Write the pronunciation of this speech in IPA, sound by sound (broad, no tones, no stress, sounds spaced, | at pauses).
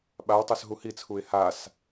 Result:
ɓ a w tˤ œ s ɦ u h i t͡sʰ u ɪ̯ h a s